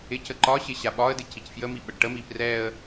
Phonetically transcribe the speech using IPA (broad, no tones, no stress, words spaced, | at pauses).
ɪcə ǃɒɕɪ ɕaɓɒə̯dɪ cicfjəmi ɓəɖʈəmi prɛə̯